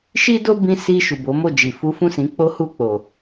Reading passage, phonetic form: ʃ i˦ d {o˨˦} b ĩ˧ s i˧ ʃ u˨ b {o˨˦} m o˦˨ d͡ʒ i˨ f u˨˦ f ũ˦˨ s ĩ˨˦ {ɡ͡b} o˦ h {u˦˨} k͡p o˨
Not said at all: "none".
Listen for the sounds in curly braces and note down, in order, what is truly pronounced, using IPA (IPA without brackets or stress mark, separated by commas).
o˦, o˨˦, k͡p, u˦˨